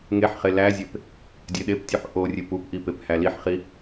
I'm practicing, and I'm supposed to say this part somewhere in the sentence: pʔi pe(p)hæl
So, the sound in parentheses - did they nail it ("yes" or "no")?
yes